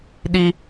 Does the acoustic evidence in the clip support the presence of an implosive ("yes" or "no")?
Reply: yes